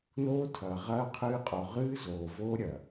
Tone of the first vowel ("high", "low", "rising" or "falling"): high